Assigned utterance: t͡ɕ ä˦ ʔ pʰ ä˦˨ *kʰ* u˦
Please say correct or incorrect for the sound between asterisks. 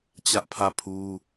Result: incorrect